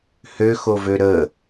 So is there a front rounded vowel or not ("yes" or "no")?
yes